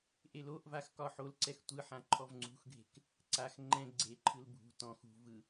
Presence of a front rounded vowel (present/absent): absent